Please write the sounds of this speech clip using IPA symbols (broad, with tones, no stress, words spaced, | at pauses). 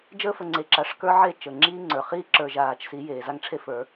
d͡ʒəː˦fə˨ ŋ͡ǀe˨ǁa˨ʂkə˞˦ ʕe˦˨t͡ʃəː˨ŋ͡ǁiː˦ ŋ͡ǀə˞˨ χiː˦ǁə˞˨ʒaː˨t͡ʃsi˨˦ jeː˨za˦ŋʈ͡ʂʰe˦fə˞˨˦